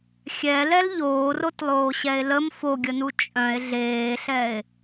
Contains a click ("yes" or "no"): no